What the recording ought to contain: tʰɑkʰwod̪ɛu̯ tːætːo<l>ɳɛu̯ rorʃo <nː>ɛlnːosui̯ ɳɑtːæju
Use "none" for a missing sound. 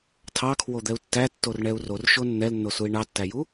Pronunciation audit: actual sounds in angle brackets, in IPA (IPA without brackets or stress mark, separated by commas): r, nː